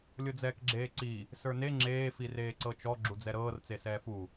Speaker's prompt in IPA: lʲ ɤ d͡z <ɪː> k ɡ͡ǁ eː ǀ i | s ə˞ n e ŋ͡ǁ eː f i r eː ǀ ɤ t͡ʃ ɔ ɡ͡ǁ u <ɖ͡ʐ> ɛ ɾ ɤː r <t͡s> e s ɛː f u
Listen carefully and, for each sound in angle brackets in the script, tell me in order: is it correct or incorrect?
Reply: incorrect: ɛː, incorrect: d͡z, correct

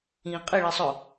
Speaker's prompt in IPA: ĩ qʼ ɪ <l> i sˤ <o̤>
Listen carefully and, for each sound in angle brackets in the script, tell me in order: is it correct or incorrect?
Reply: incorrect: ɭ, incorrect: o

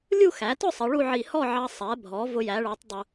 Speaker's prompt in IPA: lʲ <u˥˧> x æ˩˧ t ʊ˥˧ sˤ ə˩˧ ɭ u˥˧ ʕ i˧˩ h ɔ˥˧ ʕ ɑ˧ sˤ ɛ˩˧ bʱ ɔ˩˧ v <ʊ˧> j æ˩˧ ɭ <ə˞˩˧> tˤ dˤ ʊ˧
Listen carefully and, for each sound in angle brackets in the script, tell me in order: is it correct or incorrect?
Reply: correct, correct, correct

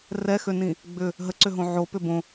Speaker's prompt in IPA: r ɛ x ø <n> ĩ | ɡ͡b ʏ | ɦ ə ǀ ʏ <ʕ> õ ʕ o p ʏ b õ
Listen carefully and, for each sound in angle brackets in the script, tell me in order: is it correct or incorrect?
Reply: correct, incorrect: ɦ

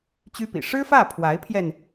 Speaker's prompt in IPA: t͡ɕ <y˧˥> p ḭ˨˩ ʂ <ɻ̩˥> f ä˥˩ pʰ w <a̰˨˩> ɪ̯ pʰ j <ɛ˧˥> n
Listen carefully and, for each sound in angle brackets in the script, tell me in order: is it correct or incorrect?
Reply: incorrect: y˥, correct, incorrect: a˧˥, incorrect: ɛ˧

